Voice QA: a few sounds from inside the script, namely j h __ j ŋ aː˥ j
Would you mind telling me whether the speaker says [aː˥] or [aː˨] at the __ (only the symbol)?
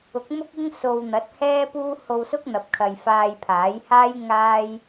aː˥